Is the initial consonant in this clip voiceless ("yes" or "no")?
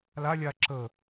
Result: no